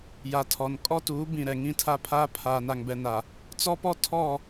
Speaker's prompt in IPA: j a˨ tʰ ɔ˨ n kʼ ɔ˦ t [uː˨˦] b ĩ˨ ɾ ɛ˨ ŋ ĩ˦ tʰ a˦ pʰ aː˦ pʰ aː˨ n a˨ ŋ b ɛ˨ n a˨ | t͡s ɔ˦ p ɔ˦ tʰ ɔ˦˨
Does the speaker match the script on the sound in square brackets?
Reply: yes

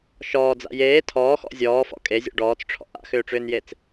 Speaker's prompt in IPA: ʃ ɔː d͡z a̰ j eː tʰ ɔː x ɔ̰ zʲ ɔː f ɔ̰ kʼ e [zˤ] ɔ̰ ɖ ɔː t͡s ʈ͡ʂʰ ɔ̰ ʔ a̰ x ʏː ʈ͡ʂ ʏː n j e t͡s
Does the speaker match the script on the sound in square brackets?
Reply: no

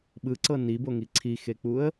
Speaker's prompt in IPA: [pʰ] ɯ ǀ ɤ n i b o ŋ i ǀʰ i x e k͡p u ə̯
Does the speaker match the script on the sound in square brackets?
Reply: no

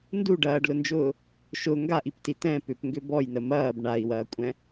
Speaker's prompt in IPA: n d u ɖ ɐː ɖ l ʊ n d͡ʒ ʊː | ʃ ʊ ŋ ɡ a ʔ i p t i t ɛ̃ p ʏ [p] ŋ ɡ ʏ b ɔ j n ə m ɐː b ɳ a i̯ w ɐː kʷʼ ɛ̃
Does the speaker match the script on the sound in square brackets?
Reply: yes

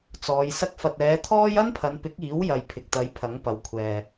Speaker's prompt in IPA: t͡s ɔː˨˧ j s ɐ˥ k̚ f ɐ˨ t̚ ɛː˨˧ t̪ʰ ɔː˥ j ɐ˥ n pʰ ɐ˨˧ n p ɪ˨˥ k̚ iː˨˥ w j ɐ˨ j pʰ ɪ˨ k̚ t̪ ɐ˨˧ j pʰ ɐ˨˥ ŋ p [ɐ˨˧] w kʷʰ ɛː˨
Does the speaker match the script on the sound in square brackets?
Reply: yes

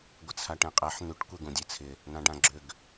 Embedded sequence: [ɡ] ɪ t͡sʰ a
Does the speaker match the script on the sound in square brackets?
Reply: no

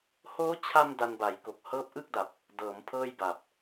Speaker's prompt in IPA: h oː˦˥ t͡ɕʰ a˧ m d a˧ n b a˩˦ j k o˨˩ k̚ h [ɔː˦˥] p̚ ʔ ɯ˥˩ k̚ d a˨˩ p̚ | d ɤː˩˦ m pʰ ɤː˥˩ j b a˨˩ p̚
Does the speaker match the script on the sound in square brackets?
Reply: no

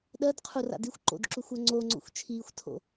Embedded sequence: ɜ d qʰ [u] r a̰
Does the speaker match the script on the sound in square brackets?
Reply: yes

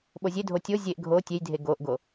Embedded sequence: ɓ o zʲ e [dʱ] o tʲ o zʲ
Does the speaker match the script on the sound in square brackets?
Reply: yes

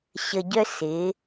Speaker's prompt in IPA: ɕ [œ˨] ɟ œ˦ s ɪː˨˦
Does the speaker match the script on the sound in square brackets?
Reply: no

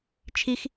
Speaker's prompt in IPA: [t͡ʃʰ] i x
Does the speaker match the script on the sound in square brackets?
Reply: yes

